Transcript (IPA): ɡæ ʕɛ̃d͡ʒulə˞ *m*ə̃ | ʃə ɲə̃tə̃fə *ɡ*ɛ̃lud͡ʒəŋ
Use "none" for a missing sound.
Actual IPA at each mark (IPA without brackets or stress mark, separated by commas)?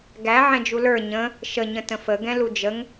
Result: ɲ, ɡ